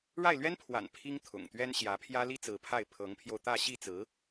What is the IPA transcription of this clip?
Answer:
ɻ a˥˩ ɪ̯ l ɥ ɛ˥ n pʰ w a̰˨˩ n pʰ i˥ ŋ t̪ʰ ʊ̰˨˩ ŋ t̪ ɥ ɛ˥ n ɕ j ä˧˥ pʰ j ä˥ l i˥ t͡s ɹ̩˧˥ pʰ a˥˩ ɪ̯ pʰ ɤ˧˥ ŋ pʰ j o˧ ʊ̯ t̪ ä˥˧ ɕ i˥˩ t͡s ɹ̩˧˥

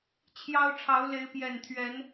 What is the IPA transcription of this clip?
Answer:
t͡ɕʰ j ɑ˦ ʊ̯ ʈ͡ʂʰ ɑ˨˦ ʊ̯ l e˨˦ ɪ̯ p j ɛ˨˩ n t̪ʰ ɥ ɛ˨˦ n

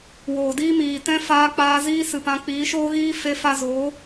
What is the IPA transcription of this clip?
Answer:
w oː˨ d iː˦ m iː˨ t ɛ̃˦ f aː˧ k͡p aː˧ z iː˦ s ɨ˨ p ã˧ k͡p iː˨˦ ʃ oː˦ ɣ iː˦ f e˧ f a˧ z o˨˦

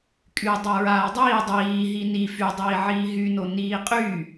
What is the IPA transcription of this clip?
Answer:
kʼ y dˤ a ɹ aː dˤ iː dˤ iː ɦ i n i f y dˤ iː ʕ iː ɦ y n o n iː qʼ yː

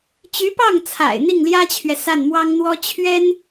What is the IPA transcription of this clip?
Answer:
t͡ɕ y˧˥ p ɑ˥˩ ŋ t͡sʰ a̰˨˩ ɪ̯ n̪ i˥˩ ŋ l j ä˥ t͡ɕʰ ɥ ɛ˨ s a˥˩ n m w ɑ˥ ŋ n̪ w ɔ˥ t͡ɕʰ ɥ ɛ˥ n

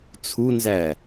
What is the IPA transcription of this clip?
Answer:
t͡sʰ u n z æ

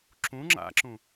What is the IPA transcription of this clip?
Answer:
ǁ ũ ŋ͡ǁ a̰ ǁ ũ

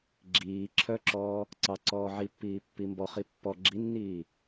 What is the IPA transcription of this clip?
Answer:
ɡ͡ǁ iː ǁʰ œ ǁ ɔː | ǀ ɑ ǀ ɔː ʕ i pː iː pː i m b ɔ χ i pː ɔ ɡ͡ǁ i nː iː

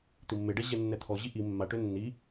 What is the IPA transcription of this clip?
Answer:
t̪ i mː e ɖ ɛ ʑ ɛ nː ɛ t̪ʰ ɔ ʑ i ʔ i mː a ʈ ø nː i

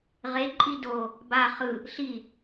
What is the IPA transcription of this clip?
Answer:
ʁ e ǃʼ i d o | b a χ ɯ | ɬ i

